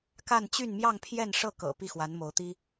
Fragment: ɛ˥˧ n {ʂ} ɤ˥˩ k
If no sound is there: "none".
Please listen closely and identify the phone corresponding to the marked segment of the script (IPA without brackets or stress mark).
ʂ